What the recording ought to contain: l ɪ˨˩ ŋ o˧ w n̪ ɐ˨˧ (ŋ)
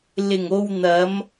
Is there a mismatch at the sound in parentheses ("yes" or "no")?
yes